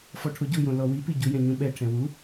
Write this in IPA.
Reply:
f ɔ ʈʰ o ɟ u j õ l ɔ w i p i ɟ u j ɛ̃ ɲ ũ ɓ ɛ ʈʰ ɛ̃ w u

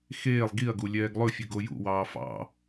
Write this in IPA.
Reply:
x eː lˠ ɡ i ɐ̯ ɡ u lʲ ɛː ɡ lˠ ɵ fʲ ʉ ɡ o j ṵ w ɑː f ɑ̰

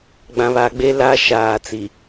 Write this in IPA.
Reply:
ɡ͡b ã˨ β a˨ ɡ͡b e˦ l a˦ ʃ aː˨ t͡s i˨

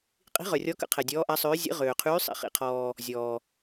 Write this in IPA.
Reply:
qʼ i̤˧˥ ʁ œ˨ rʲ ɔ˧˥ k ə̰˧˥ qʰ ɛ˨ dʲ ɔː˧˥ ʔ a˧˥ sˤ øː˧˥ zʲ ə̰˧˥ ʁ øː˨ qʰ yː˧˥ sˤ ḭ˨ χ ḭ˨ qʰ ɔː˨ | zʲ ɔː˨

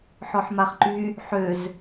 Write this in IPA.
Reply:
ħ ɔ ħ m a χ ǃ y | ħ ø z

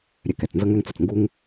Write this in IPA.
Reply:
ɾʲ ɛ˧ k ɛ˩ t͡s n z ɤ˥ ŋ ɛ˥ ŋ t͡s ə˩ t͡s ŋ ɡ u˥ ŋ

